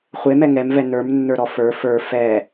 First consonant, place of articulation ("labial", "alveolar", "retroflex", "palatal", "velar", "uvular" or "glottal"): uvular